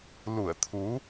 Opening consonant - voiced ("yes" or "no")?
yes